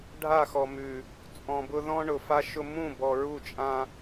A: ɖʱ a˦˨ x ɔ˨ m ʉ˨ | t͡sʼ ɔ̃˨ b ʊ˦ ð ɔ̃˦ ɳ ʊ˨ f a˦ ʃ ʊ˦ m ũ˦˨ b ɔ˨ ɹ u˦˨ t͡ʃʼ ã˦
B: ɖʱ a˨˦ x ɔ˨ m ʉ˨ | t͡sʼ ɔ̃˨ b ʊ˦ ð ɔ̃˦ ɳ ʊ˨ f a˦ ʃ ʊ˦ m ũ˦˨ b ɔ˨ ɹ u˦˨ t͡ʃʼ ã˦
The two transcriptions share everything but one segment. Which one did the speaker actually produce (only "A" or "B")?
A